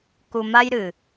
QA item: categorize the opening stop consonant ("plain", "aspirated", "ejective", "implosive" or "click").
plain